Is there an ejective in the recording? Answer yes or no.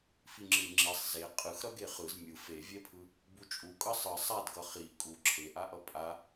yes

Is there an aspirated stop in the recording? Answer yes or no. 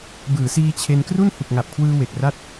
yes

